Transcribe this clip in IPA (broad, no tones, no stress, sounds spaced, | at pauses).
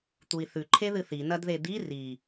t̪ u i̯ θ ʉ ǃʰ e ð ɨ θ i n ɐ d ð e d̪ i r i